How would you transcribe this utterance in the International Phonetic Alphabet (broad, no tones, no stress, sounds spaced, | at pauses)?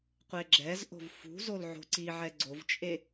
qʷ e ɡ͡ǁ ɛ z ʔ o̤ v f ṳ z o l ʕ o̤ ǀ i ʕ ɛ ɡ͡ǀ o v t͡ʃʼ e